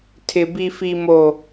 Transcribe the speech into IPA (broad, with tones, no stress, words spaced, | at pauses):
tʰɪ˦bi˦ fi˦mo˦